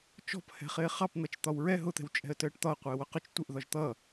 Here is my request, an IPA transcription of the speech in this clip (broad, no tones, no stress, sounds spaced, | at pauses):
t͡ʃ ɔ̤ p h ɛ̤ χ ɪː χ ɑ p n̪ ʌ t͡ʃ t̪ ɒ w ɹ ɛ ɦ ʊ t̪ ɛ̤ w t͡ʃʼ ɛ̤ ə̯ t əː ʈ t̪ ɒ ə̯ qʷ ɪː w ʊ q ʊ t͡ʃ tʷ ɪ ʔ ð ɒ ʒ t̪ ʌ